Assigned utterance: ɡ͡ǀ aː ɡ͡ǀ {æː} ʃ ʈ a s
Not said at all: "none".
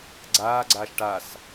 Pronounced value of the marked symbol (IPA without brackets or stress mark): aː